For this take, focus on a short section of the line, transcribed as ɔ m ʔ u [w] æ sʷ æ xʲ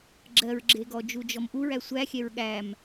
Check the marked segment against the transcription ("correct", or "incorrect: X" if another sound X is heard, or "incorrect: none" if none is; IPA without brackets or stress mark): incorrect: ɹ